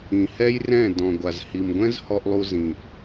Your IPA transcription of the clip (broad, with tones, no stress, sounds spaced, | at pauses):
ĩ˨ h ɛ˦ j r ɛ̃˦˨ d ɔ̃˨ ɡʷ a˨ z h i˨ m ɡʷ ɛ̃˦ z h ɔ˧ ʔ lˠ u˧ z ĩ˨ ʔ